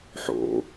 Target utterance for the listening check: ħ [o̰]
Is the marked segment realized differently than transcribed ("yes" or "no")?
no